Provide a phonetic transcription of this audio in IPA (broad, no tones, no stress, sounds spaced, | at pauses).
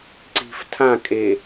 ǀ i̤ f tʰ ã kʼ e